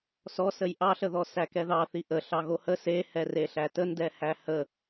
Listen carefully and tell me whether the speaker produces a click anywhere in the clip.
no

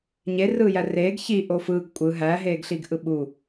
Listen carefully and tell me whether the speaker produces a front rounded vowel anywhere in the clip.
no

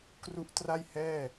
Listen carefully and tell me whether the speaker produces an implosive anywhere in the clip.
no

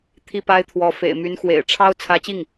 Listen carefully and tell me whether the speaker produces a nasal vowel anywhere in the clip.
no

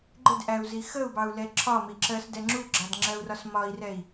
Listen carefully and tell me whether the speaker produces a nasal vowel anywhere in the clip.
no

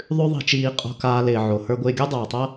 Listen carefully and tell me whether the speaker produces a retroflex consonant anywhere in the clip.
no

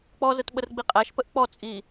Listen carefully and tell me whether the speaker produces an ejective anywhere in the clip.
yes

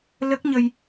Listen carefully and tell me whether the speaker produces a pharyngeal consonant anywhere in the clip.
no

